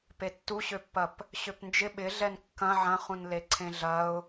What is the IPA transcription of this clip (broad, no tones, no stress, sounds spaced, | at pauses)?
p e tː u ɕ ø pː ɐ p | ɕ ø p n d͡ʒ ɪ ɓ ɪ ɮ ɛ n kː ɐ̃ ʕ ɐ̃ χ ũ n l e ǀʰ ẽ ɮ ɐ ʊ̯